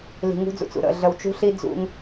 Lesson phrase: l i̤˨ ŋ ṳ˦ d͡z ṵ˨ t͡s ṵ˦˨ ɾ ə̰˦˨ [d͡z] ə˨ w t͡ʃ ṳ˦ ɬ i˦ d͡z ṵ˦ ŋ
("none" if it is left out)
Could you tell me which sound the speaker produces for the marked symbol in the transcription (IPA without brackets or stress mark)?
ɮ